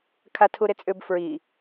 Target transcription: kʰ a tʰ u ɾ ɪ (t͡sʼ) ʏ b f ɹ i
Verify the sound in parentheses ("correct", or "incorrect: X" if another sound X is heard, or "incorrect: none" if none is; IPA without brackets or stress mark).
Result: correct